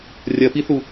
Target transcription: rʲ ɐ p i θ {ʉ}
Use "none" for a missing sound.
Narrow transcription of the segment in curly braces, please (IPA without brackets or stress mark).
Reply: u